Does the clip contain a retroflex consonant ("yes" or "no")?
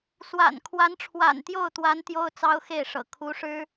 yes